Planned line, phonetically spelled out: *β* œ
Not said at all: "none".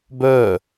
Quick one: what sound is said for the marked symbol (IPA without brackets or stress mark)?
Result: b